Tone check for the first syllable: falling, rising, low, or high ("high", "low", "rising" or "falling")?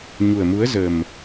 low